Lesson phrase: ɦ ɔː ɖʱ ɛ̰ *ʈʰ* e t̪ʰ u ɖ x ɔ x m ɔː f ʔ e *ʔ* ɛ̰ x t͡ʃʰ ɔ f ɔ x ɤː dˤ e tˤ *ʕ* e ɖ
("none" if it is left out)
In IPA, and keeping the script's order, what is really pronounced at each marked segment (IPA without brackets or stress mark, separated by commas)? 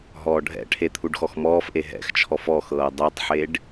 ʈʰ, ɦ, ħ